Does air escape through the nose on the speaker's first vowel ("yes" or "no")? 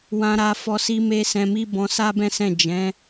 yes